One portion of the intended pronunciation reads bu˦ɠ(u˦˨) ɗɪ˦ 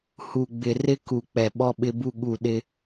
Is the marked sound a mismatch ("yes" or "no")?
no